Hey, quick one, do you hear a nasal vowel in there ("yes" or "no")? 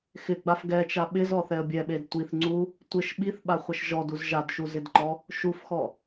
no